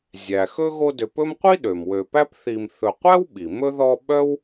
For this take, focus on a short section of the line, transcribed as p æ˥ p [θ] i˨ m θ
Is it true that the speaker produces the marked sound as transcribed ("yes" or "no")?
yes